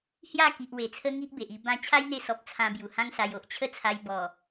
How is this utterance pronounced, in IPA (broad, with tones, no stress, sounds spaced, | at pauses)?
h j a˥˧ k i˨ ʔ w e˨˩ t͡sʰ ə˦ ŋ i˦ ʔ b e˨ ʔ i˧ b ã˧ t͡ɕʰ a˦ j n̪ e˧ s ɔ˨ p̚ t͡sʰ ã˧ b j u˨˩ h ã˦ ŋ s a˧ j o˨ ʔ t͡ɕʰ ə˥˧ t͡sʰ a˧ j b ɔ˨˩